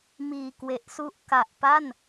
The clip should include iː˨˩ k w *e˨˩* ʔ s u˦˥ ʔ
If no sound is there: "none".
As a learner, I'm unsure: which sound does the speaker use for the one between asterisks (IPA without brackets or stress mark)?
e˨˩